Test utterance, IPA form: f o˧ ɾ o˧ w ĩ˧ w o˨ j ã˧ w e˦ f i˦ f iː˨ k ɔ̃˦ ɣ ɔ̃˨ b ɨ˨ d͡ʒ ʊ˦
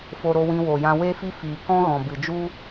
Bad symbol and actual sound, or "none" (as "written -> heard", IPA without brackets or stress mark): ʊ˦ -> u˦